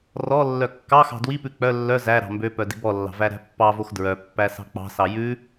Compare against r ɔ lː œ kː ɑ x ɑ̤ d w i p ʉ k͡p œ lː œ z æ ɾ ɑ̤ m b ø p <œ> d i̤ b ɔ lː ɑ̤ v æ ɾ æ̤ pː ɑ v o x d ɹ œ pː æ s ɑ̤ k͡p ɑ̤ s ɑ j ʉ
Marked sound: correct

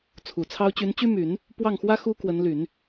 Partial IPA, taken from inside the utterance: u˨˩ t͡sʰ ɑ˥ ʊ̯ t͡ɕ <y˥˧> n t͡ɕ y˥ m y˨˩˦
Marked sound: incorrect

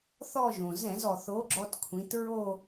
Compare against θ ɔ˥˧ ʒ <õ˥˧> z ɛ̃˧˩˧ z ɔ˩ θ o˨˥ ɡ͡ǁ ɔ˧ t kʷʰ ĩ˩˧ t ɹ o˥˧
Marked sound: incorrect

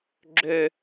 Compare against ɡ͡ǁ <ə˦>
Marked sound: incorrect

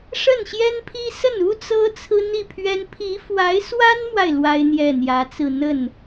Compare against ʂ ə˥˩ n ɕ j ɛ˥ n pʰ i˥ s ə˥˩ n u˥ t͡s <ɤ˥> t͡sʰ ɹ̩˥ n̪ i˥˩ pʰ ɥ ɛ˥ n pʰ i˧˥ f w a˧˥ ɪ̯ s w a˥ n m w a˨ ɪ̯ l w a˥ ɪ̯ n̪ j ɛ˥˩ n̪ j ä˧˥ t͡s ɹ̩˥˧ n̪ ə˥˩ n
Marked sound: correct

